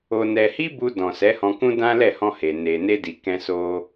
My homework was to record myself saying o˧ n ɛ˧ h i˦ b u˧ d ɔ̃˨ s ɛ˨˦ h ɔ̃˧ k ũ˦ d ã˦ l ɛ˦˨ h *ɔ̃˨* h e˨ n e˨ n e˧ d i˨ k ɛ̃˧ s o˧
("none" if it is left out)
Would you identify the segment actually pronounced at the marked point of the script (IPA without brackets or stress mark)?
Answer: ɔ̃˧